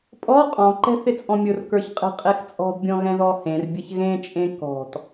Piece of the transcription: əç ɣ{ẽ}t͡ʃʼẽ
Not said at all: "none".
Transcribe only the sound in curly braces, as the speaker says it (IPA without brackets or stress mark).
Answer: ẽ